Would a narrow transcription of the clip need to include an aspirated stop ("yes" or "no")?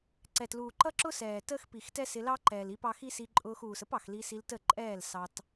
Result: no